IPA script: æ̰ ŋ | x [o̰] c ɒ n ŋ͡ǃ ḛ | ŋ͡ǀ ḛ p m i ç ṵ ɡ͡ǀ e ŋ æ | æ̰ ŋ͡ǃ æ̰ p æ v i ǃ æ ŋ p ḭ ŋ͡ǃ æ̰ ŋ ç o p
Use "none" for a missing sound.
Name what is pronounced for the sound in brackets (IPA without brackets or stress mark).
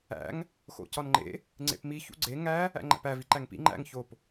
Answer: o̰